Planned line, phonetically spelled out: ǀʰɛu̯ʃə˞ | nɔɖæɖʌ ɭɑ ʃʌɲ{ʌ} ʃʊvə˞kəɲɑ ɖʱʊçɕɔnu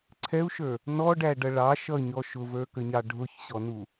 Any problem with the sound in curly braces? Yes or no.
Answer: yes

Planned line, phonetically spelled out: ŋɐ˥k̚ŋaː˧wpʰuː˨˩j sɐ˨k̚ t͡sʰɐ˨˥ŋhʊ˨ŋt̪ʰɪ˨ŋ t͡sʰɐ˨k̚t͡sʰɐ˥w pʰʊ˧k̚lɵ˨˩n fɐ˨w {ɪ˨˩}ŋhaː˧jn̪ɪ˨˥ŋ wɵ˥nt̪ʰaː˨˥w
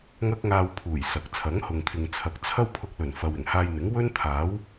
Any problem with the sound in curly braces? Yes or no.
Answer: no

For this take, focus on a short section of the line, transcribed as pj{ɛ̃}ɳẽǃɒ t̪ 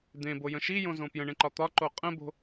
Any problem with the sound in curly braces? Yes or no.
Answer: yes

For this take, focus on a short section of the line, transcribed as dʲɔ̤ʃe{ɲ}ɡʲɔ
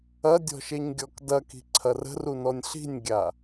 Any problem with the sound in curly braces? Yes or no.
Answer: no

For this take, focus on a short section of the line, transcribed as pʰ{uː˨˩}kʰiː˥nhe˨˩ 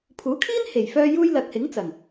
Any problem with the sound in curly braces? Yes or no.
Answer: yes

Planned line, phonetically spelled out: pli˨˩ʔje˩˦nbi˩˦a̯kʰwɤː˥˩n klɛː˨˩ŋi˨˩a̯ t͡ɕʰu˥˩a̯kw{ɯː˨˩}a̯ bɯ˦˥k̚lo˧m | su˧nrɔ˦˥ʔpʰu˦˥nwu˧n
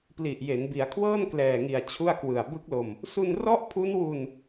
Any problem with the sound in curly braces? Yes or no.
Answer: yes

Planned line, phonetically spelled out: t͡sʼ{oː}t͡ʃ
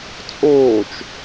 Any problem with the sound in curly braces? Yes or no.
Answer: no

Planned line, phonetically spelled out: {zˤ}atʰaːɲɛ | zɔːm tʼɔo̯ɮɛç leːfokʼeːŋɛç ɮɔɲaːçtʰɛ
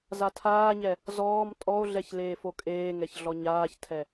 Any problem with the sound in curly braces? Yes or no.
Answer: yes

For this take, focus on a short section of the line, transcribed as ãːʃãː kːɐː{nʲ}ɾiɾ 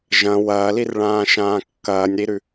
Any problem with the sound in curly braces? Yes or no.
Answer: no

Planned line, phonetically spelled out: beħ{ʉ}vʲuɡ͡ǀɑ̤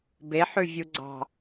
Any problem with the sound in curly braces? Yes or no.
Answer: no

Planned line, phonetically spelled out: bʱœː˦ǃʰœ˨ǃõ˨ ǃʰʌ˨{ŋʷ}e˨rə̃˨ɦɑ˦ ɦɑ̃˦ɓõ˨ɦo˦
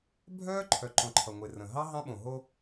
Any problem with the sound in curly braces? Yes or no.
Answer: no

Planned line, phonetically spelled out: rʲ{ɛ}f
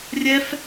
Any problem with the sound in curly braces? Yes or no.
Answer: no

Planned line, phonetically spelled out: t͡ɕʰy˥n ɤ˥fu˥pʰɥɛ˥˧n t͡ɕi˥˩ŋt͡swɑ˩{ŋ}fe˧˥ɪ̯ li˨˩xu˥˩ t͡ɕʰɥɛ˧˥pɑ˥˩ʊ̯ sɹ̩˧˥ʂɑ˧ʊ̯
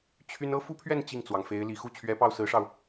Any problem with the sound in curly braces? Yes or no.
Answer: no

